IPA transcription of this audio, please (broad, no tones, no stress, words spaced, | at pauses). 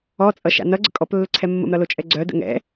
ɔt͡sʼʌʃa̰ nʌɡ͡ǀə̰ kʼɔplːəǀʰɛ mːə̰mɾʌlot͡ʃʼɛ ɡ͡ǀœdə̰ ŋɛ̰